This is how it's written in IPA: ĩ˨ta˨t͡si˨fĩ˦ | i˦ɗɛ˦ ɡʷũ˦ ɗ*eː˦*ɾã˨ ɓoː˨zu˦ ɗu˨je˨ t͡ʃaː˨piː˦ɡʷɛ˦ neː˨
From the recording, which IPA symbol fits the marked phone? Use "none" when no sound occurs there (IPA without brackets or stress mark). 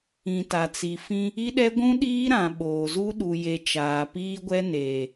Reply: iː˦